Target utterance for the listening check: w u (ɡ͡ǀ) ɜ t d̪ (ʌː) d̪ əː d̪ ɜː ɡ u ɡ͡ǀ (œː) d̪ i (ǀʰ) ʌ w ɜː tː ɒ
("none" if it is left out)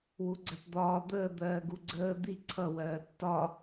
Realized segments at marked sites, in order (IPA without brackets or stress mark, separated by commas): ɡ͡ǀ, ɒː, əː, ǀʰ